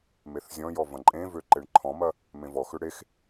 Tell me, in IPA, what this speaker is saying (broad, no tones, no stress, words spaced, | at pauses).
meθzʲɔ̃jɔ vɐ̃ǃʼẽvø ǃeɳǃʰɔ̃mɐ | mẽvɔxʏ ɽex